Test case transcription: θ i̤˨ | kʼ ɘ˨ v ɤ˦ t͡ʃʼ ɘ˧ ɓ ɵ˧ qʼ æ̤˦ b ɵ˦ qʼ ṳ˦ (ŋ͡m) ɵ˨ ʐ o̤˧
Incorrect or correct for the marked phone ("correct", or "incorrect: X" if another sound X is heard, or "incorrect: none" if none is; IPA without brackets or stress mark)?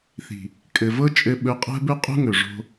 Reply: incorrect: ŋ